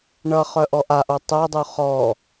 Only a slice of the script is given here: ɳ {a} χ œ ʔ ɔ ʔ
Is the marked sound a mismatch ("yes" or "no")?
yes